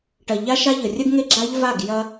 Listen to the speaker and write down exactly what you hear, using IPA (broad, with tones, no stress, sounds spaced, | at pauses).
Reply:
ʈ ɐ˨ ʎ a˦ ʃ a˦ ʎ ə˨ rʲ ə˦ ɡ ŋ e˦ ɡ͡ǁ a˦ ʎ v a˦˨ ɡ j ɐ˦